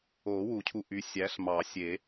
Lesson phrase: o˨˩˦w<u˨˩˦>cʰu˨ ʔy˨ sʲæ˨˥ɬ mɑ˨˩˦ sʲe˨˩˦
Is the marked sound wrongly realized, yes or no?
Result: no